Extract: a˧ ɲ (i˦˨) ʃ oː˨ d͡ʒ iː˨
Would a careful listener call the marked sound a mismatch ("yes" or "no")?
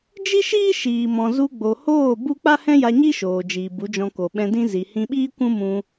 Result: yes